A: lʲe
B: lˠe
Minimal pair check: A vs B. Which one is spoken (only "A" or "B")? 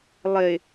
B